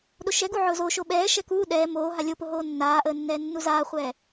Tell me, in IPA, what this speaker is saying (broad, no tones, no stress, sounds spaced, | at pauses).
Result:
ɗ o ʃ ɛ ɡ u ʕ ʊː z o ʃ o ɓ ɛː ʃ ɛ k uː ɗ ɛː m oː ɦ a lʲ o p ʊ ɦ oː nː aː ʔ əː nː ɛː nː u z aː χʷ ɛː